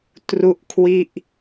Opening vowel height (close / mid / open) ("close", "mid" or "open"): close